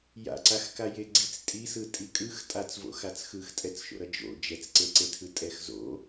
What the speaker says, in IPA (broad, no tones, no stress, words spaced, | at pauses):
ja̰ǀaxkaje ɡ͡ǀit͡stʼisɯ tʼikʼɯx tʼat͡svo̰xat͡s xɯxtʼɛt͡sʃo̰ɾʌ d͡ʒo̰ d͡ʒɛt͡sǀeǀetʰɯ tʼɛxzo̰